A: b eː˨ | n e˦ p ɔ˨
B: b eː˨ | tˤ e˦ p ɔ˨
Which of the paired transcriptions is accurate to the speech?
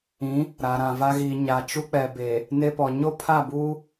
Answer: A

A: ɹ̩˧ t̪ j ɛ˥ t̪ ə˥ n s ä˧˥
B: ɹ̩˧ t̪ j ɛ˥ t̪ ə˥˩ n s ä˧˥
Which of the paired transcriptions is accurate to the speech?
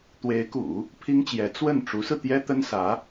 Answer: A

